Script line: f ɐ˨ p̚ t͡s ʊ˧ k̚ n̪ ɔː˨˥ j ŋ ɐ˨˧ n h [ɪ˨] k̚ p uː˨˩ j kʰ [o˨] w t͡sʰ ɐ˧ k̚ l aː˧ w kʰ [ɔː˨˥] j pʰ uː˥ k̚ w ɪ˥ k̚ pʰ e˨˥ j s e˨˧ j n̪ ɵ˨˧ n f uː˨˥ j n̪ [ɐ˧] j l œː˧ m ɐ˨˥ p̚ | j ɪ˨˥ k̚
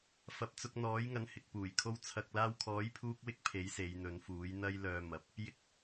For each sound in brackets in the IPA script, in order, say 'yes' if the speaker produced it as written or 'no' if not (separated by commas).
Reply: yes, no, yes, no